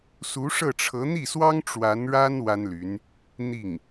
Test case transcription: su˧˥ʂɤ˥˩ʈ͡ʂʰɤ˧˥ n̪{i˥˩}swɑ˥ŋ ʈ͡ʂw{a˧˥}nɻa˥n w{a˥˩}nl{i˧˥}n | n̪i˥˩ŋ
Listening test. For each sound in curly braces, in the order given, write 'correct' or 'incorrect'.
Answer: correct, correct, incorrect: a˥, incorrect: y˧˥

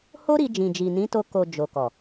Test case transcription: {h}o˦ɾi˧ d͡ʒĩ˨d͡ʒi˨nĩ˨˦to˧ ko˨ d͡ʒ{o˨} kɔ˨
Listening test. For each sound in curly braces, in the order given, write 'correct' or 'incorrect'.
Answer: correct, correct

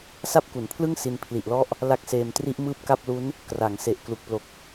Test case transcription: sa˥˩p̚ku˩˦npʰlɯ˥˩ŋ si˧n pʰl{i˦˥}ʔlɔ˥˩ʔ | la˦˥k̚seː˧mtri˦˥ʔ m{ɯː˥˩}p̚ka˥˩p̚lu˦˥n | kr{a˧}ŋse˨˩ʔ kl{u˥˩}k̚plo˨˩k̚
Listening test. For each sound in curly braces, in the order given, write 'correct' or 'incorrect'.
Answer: incorrect: i˨˩, correct, incorrect: a˩˦, incorrect: u˨˩

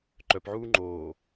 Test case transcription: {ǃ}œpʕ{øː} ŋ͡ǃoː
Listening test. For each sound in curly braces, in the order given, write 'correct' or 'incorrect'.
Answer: correct, incorrect: uː

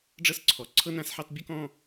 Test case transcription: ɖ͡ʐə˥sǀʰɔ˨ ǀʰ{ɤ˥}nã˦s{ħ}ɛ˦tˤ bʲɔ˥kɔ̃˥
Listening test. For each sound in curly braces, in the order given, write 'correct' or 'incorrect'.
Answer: correct, correct

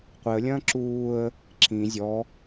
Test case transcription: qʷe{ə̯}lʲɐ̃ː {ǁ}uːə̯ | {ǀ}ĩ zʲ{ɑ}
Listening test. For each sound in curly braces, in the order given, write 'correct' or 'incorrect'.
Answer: correct, correct, incorrect: ǁ, incorrect: ɔ

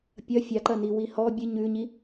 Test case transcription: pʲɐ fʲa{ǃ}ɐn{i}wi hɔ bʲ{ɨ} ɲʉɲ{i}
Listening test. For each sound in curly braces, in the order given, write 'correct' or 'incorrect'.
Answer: correct, correct, correct, correct

